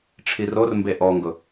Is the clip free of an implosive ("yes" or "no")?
yes